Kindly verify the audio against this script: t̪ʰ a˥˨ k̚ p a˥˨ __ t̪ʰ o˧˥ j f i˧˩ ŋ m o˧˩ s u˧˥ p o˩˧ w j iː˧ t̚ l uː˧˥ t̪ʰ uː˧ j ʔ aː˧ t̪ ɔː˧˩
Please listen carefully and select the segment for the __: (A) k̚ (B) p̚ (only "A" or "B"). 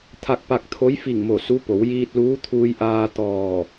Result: A